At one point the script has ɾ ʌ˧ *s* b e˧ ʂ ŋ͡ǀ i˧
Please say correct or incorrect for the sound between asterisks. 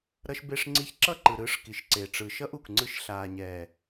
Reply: incorrect